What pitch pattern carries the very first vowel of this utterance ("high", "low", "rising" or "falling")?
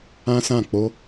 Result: high